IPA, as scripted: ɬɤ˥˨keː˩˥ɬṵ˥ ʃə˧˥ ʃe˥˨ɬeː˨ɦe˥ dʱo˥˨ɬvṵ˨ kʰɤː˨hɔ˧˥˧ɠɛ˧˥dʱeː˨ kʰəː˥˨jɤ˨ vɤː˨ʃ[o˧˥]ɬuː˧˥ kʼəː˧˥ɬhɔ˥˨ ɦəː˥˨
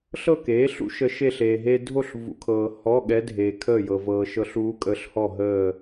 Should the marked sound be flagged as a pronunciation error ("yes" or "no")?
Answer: yes